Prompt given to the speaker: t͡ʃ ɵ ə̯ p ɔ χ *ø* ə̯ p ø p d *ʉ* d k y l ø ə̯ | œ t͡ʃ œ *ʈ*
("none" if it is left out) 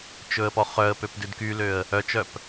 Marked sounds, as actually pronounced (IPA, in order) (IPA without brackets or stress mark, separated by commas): œ, ʉ, p